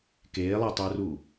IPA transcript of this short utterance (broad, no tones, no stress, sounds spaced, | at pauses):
k eː lˠ ɛ tˤ ə u̯ r uː